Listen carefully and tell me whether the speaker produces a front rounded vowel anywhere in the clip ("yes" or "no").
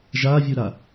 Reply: no